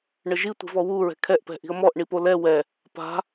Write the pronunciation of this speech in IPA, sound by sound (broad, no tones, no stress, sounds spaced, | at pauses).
ɳ ɘ ʒ i tʷ i̤ v ɔ w u ɹ ɛ̤ kʰ ɛ ʔ p ɛ̤ ʔ i̤ ə̯ m ɔ ʔ ɳ i p o l ɛ w ɛ | p a̤